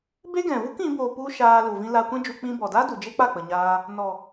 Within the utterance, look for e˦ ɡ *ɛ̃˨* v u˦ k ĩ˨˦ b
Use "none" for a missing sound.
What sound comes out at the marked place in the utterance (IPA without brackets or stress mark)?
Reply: ɛ̃˨